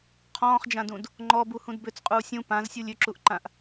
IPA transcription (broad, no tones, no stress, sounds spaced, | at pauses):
qʰ ɔ̃ː χ d͡ʒ ã d ũ d | ŋ͡ǃ ɔ b u h ũ d b ʏ t͡s qʼ uː sʲ ũ p ã z sʲ u lʲ ʏ ǁ u ʔ ǃ ã ʔ